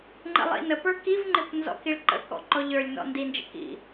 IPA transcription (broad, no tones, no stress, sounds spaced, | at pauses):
ŋ͡ǃ ə̰ lˠ ḭ n ə p ə˞ k i v ŋ͡ǃ ɪ p n z ɔ̰ k i ɭ ǃ ə̰ k ɔ̰ ǃ ɔ ʎ ə˞ lʲ n ɔ̰ n d i n d͡ʒ ə̰ k ḭ